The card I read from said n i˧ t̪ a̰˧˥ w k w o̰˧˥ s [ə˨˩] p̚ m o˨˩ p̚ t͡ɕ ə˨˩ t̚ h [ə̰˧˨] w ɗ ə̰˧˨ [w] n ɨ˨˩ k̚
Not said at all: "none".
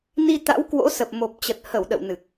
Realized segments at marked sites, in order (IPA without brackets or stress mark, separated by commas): ə˨˩, ə˧˩, w